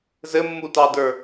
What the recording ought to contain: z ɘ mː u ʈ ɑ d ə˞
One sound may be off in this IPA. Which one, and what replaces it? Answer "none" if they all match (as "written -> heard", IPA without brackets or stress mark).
ʈ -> t